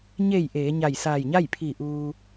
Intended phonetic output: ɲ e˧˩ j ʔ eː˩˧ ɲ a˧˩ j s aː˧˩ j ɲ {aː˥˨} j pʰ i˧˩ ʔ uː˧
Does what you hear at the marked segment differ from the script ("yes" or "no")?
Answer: yes